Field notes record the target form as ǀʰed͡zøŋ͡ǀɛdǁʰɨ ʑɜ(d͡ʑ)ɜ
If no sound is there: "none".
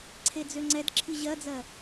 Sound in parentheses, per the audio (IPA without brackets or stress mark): d͡z